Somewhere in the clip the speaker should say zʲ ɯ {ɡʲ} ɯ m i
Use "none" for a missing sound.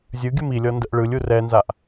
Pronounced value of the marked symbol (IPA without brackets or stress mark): ɡʲ